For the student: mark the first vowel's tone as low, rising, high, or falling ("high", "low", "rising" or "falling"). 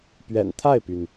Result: low